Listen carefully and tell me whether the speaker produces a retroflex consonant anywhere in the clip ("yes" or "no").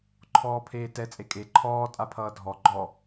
no